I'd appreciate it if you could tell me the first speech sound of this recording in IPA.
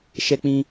ʃ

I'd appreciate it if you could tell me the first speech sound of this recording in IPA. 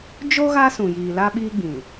d͡ʒ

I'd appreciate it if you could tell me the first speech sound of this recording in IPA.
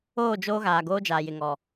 oː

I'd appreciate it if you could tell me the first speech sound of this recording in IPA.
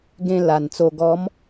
ɡ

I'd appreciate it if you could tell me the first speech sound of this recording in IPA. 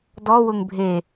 d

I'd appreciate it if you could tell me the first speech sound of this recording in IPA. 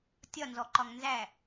tʲ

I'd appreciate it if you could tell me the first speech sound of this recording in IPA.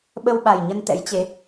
ɓ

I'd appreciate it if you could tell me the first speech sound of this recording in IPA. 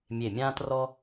mʲ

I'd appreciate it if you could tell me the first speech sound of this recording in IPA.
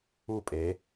u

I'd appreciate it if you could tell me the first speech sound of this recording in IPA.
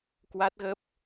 k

